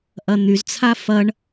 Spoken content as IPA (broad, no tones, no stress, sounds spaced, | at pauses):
ʔ ɐ n̪ y z t͡sʰ a f ɐ ɳ